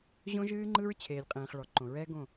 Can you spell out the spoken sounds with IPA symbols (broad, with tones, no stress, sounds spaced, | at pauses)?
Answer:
ʑ õ˦ ʒ ɨː˦ ŋ͡ǃ ɯ˦ ɹ t͡ɕʰ eː˨ lʲ qʼ ẽː˨ χ ɭ ɔ˨ ǃ õ˨ ɹ ɛː˦ ɡ õ˦˨